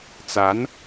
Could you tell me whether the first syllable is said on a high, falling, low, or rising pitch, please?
rising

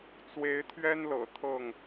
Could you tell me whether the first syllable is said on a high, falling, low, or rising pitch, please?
rising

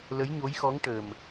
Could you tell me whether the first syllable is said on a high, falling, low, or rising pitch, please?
rising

